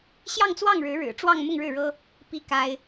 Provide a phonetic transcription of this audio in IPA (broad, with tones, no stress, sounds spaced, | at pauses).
ɕ j ɑ˥˧ ŋ t͡s w ɑ˥˩ ŋ ɻ ɻ̩˧˥ ɻ ɻ̩˨˩ ʈ͡ʂ w ɑ˥˧ ŋ m ʊ˥˧ ŋ ɻ ɻ̩˥˩ ɻ ɤ˥ | p i˥ k a˥ ɪ̯